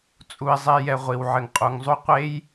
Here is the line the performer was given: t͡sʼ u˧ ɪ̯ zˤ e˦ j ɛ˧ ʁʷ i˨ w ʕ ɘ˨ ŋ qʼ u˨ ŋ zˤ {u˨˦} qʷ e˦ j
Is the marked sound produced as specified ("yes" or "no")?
no